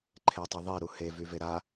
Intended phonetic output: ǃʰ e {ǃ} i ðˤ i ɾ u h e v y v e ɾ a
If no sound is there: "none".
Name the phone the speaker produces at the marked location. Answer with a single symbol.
tˤ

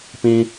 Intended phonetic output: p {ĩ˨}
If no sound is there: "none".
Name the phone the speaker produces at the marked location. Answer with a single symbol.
ĩ˦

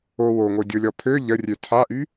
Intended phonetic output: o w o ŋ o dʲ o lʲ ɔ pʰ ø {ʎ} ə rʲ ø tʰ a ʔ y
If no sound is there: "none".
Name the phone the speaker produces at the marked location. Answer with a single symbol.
ʎ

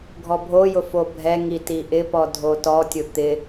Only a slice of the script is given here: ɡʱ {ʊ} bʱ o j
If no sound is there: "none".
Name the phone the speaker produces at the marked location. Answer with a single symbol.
ɔ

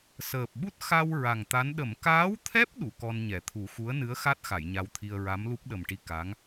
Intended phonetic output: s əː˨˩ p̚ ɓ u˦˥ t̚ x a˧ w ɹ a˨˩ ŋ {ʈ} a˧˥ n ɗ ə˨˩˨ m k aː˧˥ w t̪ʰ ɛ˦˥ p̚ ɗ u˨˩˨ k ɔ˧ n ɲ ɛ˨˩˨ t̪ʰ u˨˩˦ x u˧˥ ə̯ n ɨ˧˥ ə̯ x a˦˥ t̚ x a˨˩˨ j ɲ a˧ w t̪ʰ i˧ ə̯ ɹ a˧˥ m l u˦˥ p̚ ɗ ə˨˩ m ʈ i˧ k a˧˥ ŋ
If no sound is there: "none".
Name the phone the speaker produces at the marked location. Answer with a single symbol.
t̪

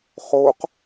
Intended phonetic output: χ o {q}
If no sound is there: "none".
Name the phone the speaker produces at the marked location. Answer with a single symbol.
q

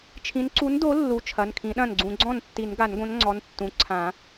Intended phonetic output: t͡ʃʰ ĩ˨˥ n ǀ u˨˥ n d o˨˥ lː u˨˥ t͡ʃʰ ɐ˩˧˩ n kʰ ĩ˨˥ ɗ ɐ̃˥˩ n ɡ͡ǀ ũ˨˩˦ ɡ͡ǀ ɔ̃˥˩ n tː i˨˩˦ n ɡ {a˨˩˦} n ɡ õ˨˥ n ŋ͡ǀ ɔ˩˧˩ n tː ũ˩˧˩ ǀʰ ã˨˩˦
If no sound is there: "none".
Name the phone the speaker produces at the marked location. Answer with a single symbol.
a˨˩˦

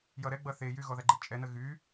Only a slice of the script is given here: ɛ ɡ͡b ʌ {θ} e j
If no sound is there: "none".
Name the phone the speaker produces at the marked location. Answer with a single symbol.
θ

